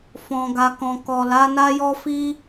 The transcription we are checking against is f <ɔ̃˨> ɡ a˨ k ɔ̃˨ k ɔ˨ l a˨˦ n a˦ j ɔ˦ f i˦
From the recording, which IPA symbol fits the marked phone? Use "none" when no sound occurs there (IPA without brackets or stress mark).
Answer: ɔ̃˨